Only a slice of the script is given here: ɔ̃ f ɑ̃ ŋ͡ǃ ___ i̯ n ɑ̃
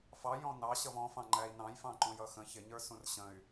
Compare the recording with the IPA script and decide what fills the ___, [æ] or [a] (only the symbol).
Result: æ